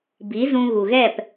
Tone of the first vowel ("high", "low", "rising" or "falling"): rising